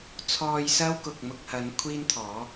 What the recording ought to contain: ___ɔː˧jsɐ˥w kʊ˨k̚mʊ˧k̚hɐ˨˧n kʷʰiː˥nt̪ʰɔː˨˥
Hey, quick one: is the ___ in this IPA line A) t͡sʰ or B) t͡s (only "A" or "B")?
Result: A